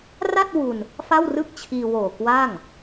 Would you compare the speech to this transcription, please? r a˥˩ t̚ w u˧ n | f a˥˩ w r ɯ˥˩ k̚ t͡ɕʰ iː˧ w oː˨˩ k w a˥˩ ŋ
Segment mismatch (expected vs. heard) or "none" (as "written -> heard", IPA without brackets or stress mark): none